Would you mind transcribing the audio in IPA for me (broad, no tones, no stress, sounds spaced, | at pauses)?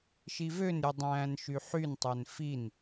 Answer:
ʃ i v ø n ɾʲ u dˤ æ̃ː n ʃ y ħ y n tˤ œ n f i n